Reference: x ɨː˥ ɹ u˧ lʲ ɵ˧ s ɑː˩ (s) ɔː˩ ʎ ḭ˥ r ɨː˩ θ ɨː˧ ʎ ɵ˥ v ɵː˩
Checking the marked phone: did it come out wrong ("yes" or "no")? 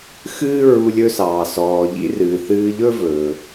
no